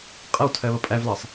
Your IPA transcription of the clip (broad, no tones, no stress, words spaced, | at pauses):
qʼʌwtʰɜβʌ pʼævlɑsˤ